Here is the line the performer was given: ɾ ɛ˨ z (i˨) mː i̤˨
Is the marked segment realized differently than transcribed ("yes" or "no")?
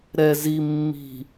no